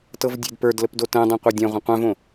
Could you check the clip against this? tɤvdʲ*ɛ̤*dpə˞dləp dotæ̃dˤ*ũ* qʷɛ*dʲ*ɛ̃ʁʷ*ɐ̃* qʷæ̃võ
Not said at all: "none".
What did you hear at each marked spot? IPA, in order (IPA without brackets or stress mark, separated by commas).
ɛ̤, õ, dʲ, ə̃